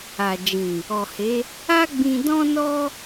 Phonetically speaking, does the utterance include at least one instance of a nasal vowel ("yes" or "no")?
yes